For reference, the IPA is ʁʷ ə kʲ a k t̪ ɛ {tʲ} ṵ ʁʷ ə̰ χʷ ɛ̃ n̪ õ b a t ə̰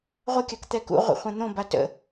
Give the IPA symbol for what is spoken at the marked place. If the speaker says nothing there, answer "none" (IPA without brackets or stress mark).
k